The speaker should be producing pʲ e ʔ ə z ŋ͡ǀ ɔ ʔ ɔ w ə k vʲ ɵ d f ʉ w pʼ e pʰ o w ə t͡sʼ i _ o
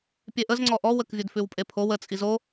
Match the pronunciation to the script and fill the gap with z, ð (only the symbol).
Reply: z